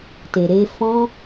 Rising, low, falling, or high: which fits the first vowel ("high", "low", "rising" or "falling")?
low